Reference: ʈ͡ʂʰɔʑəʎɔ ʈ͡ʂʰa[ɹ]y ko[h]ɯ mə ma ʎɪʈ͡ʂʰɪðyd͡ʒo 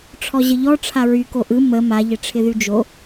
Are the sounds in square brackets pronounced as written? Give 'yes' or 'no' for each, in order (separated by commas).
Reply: yes, no